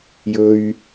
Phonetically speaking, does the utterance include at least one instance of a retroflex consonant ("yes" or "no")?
no